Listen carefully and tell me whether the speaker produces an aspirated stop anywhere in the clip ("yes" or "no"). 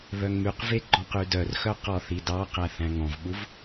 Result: no